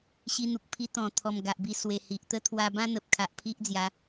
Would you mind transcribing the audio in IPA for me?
ɕi˧n̪u˨k̚pʰi˧ t̪ɔ̃˨˩ t̪ʰɔ˨˩mɡa˨ʔbi˧ swe˨˩hi˨ʔt̪ə˥˧ t̪ʰwa˧bã˦ n̪ə˨p̚kʰa˨ʔ pʰi˦ʔd͡zja˨˦

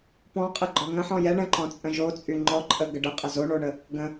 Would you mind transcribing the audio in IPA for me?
pɔ̃qʼə ɡ͡ǃɔŋə̃ħɔ̃ jɛ ɳə̃ǃɔ̃ t͡sʼə̃ʒot͡sʼy ŋ͡ǃɔǃʼə ɡəɖəqʼɐ zoɳoɳə | ɡə̃

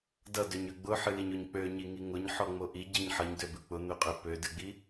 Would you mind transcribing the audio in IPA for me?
dʌdøɲø ɡ͡bʊħɨliɲʊɲ k͡pøɲiŋi ŋʊɲħɔŋ͡mo ʔiɟiɲ ħʌɲdøbɨ k͡pʊn̪øqʼø pødɨɡ͡bi

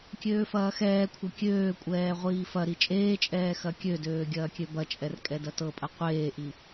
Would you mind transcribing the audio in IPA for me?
kʲøːfɐːxɛːkʷʰɐ kʲøːkʷʼɛː ʁʷiːfɐɾi t͡ʃʼeːt͡ʃʼɛː xɐkʲødøː ɡʲɐːkʲøbɐt͡ʃʼɛr kʼɛdɐtɤpʼɐ qʷeːʔi

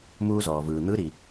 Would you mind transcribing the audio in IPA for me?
muː˧zɔː˩vɯː˩ n̪ɯ˧˥ɾi˩

